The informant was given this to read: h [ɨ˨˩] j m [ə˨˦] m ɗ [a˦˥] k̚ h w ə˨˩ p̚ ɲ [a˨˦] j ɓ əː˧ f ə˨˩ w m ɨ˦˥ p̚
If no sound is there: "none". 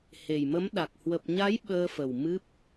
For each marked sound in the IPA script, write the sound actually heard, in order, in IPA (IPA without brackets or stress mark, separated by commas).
e˨˩, ə˨˦, a˨˩, a˨˦